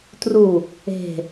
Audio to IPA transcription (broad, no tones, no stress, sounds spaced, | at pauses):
t r u | e̤